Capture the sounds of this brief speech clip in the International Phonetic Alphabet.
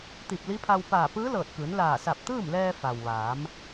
t̪ i˧˩ p̚ l i˧˥ pʰ a˧ w p aː˧˩ p ɯː˧˥ l ɤː˧˩ t̚ k ɯː˩˧ n l aː˧˩ s a˧˩ p̚ t̪ ɯː˥˨ m l ɛː˧ f a˩ w ʋ aː˩˧ m

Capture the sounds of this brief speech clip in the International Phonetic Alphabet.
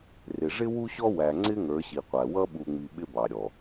r ɪ˨ ʐ ɪ˦ w u˦ ɕ ɔ˦ w æ˨ ŋ͡ǀ ɪ˦ ŋ ə˞˨˦ ɕ i˨ qʷ æ˨ w ʌ˦ ɓ u˨ ŋ͡m i˨ ɓ ɪ˦ b ɑ˨ ɾʲ ɔ˨

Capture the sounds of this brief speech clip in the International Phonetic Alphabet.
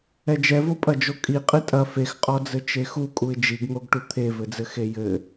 ɛ d͡ʒ ɛ v o pʼ ɐ d͡ʒ o kʼ i qʼ ɨ tʼ ɐ f e x qʼ ɔ d͡z ɘ t͡ʃ e x u kʼ u ɪ̯ d͡ʒ i ɡ ŋ o ɡ ʈ u t̪ʰ e v ɘ d͡z ɘ x e j ɘ

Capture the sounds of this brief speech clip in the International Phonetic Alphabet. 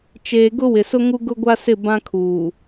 t͡ʃ eː˨ ɡ ʊ˦ w ɪ˨ s ʊ˦ ŋ u˦ ɡ ʊ˦ ɡʷ a˦ s ɪ˦˨ b ã˦ kʰ uː˨

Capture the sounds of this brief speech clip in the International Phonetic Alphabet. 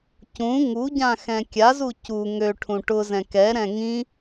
c ũ ŋ u ɟ ã x ɛ̃ kʲ a z u c u ŋ ø ʈʰ ũ ʈ ʊ z ɛ̃ k ɛ ɾ ɛ̃ ŋ ĩ

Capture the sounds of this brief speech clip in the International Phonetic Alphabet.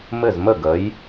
m ɘ˥˨ z m ə˥˨ ɡ ə˨˥ j

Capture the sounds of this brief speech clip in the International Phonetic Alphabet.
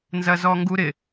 n z ɐ z ɔ ŋ ɡ u ɾ ɪ

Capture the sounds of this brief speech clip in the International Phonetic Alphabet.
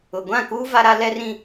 ʊ˨ ɡʷ ã˦˨ k uː˦ v a˦ ɾ a˦ l ɛ˦ r ĩ˦

